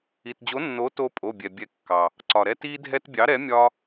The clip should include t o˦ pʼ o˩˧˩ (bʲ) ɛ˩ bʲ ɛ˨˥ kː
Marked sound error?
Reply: no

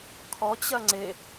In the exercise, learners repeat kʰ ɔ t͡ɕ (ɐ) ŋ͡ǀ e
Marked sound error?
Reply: no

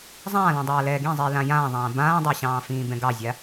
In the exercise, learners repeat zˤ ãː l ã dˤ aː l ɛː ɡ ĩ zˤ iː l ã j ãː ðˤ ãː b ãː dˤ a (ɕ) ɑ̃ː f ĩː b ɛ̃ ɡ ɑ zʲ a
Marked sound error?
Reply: no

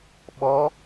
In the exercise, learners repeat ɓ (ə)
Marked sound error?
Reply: yes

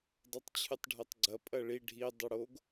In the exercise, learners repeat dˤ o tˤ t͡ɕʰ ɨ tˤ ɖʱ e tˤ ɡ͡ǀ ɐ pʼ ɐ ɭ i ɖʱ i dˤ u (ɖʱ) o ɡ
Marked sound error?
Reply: yes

